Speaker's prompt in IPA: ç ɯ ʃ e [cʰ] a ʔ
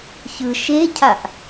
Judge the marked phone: correct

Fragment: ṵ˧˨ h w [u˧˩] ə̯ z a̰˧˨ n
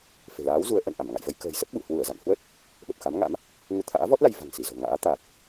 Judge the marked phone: correct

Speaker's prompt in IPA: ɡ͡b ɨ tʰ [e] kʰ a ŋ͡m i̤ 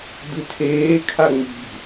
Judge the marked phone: incorrect: eː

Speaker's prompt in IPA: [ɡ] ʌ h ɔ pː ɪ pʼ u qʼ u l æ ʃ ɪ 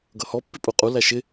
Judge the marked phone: correct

